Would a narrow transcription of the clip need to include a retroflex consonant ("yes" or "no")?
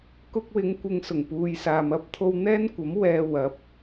no